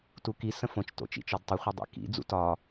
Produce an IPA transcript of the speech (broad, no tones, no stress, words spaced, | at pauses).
tuki sə̃fõt͡ʃ to̰t͡ʃḭt͡ʃɔdtˤʌ χʷədˤḭkḭ d͡zṵtɒ